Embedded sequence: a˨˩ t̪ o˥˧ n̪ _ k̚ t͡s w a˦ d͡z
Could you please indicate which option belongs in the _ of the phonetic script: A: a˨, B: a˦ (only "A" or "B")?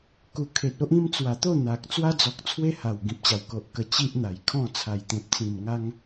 A